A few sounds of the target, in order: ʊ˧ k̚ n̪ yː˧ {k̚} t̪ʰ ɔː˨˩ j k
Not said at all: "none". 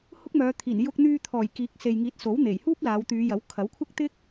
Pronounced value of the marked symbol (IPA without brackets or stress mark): none